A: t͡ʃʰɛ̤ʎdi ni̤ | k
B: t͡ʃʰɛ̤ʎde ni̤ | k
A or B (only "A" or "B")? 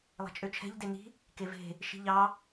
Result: B